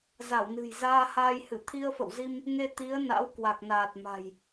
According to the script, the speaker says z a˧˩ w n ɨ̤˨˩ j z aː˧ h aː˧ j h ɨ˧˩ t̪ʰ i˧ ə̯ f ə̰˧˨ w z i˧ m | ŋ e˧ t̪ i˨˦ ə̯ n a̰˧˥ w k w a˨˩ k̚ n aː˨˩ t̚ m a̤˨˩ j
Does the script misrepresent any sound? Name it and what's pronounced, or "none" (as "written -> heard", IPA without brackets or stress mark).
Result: none